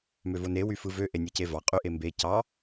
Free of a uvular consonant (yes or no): no